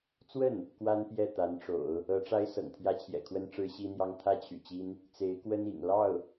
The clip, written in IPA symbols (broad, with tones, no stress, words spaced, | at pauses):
t͡swə˥˩n | kwa˥npjɛ˥˩ t̪a˧˥nʈ͡ʂo̰˨˩˦ʊ̯ | ɤ˧˥ʈ͡ʂa˥ɪ̯ sɤ̰˨˩ŋt̪ʰjä˥t͡ɕʰjɛ̰˨˩kʰwə˥n ʈ͡ʂɻ̩˥ɕi˥n̪jɑ˥ŋ t̪ʰä˥t͡ɕʰy̰˨˩t͡ɕi˥n | t͡se˧˥ɪ̯kwə˥n ḭ˨˩ŋ lɑ˥˩ʊ̯